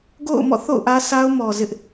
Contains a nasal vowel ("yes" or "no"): no